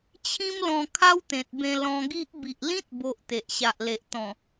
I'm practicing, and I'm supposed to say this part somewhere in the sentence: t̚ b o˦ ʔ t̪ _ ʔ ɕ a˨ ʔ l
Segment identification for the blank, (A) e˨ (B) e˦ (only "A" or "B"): A